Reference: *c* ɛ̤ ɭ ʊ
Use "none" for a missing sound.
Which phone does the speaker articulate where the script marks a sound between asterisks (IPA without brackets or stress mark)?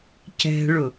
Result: c